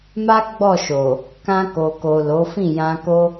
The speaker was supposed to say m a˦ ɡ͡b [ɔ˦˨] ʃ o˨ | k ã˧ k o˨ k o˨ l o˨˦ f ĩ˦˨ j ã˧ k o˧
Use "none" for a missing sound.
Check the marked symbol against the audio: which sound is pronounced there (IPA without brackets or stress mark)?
ɔ˦˨